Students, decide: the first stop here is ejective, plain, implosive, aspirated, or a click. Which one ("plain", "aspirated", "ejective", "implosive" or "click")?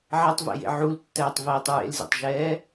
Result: plain